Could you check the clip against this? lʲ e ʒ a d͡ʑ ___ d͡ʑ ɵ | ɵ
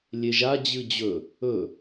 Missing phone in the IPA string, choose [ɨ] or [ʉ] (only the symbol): ɨ